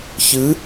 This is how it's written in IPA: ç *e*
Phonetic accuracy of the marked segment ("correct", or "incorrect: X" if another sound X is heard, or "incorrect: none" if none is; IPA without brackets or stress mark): incorrect: ɨ